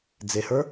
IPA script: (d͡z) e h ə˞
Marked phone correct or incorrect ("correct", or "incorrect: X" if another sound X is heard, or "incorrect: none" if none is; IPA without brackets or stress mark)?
correct